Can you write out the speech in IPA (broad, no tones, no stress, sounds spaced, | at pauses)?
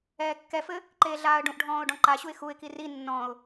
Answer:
ɛː kː ɛ f ɘ | ǃ eː ɮ aː ə̯ ɖ ũ ʔ ɖʱ ɔ̃ː ʊ̯ ɖ ɔ̃ ǃ a ɕ u ɪ̯ x u ɪ̯ k i r i nː ɔ̃ ʊ̯